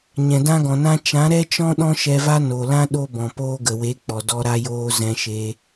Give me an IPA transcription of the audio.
ɲ ɛ̃˨ d ã˦ ɡ ɔ̃˨ n ã˦ t͡ʃ ã˨˦ ɾ ɛ˦ t͡ʃ ɔ̃˦ ɗ ɔ̃˦ ʃ ɛ˧ v a˦ n o˨ l ã˦ ɗ o˦ b ɔ̃˨ p oː˧ ɡ ə˨ w e˨˦ k͡p ɔ˨ d ɔ˧ ɾ a˧ j oː˧ z ɛ̃˧ ʃ e˧

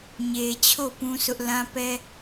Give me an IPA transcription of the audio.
ɲ e˨ t͡ɕʰ o˦˨ p ũ˦ s ʊ˦ ʔ l ã˦ p ɛ˦

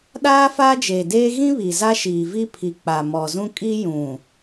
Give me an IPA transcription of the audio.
ɗ aː˦ f aː˦ d͡ʒ eː˨ d eː˦ ɣ ĩ˦ β i˨ z a˦ ʃ iː˨ v i˦ pʰ i˨ k͡p a˨ m ɔ˨ z ũ˦ kʼ i˦ j ũ˨

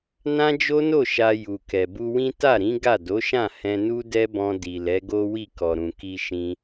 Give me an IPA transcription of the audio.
n ã˦ d͡ʒ o˦ n o˦˨ ʃ a˧ j u˨ k ɛ˨ b u˧ w ĩ˦ t a˦˨ ɾ ĩ˨˦ ɡ a˦˨ d o˨˦ ʃ ã˦˨ h ɛ̃˧ n u˦ d ɛ˦ b ɔ̃˧ d i˨ l ɛ˨˦ ɡ o˦ w i˦˨ k ɔ˨ ɾ ũ˨ k i˧ ʃ ĩ˧

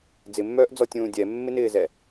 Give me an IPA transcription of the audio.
d͡z ɪ mː œː ʔ d͡z ɔ tʲ ũː dʲ ɛ mː ɪ n ɪː z ɛ

